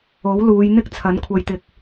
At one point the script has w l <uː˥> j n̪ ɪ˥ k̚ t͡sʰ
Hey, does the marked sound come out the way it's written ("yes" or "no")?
no